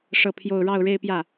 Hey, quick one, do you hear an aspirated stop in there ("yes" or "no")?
yes